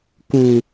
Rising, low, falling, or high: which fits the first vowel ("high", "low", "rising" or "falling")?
low